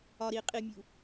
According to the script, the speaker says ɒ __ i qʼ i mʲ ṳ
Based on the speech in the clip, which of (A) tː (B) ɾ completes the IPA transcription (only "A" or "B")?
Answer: B